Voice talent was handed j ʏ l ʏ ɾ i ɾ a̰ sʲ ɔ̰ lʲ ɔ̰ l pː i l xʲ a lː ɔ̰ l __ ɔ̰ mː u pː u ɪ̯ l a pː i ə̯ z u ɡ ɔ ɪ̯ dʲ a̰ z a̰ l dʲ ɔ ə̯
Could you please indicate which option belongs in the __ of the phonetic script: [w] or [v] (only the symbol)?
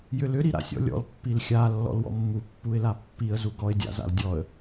w